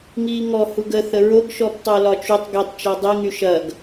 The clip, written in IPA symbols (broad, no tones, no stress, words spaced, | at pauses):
ŋiːŋɔ huɡə θəɹoɡ ʃɔptˤolɒt͡ʃutˤ ɡitˤ t͡ʃɔdˤi ŋyʃɐɡ